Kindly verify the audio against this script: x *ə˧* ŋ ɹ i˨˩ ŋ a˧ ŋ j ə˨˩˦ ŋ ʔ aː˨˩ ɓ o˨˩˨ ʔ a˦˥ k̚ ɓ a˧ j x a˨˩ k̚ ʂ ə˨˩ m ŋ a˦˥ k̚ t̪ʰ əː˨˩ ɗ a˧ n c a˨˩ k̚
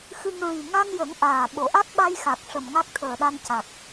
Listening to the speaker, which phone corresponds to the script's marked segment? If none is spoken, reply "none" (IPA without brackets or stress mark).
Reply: ɨ˧